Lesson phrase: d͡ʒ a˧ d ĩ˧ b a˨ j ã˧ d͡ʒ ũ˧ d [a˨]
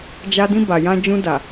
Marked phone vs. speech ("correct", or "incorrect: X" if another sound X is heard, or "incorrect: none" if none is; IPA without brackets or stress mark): correct